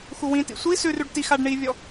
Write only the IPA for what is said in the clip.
xuwĩtḭ sʷi sʉrʉɖ tixaɖ ɳivʲɔ

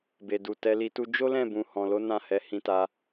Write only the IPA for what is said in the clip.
be˨du˨ tɛ˧li˧tu˦ d͡ʒo˦lɛ̃˦˨bũ˨ hɔ̃˨lo˨˦ nã˦˨hɛ˨˦ hĩ˧ta˧

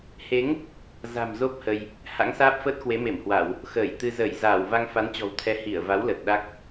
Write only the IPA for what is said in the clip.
he˨˦ŋ | za̤˨˩mzo˦˥p̚ hə˧j | ha̰˧˥ŋsaː˦˥p̚fəː˦˥t̚ kwe˨˦me˧˩mhwa˧˩˨w | xəː˧˩jt̪ɨ˧ zəː˧˩jzaː˧˩w va˧ŋfa˨˦nt͡ɕɔ̤˨˩wt̪ʰɛ˨˦ hi˧˩ə̯va˨˦wlə˨˩t̚ ɗa˦˥k̚

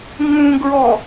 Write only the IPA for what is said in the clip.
ŋũɡɹɔ

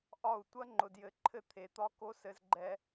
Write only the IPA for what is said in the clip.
ʔɒ˦˨u̯ tʷɐ˦ŋ͡ǃʊ˨djɘ˨ǃʰɘ˦˨ t̪ʰe˨t̪ɒ˦ko˦ sɘ˦zɡ͡ǃɛ˦

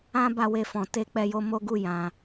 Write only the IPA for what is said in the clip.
ã˦ ba˦˨we˧fɔ̃˨ te˧ k͡pɛ˧jo˧mo˦ɡu˦˨ jã˨

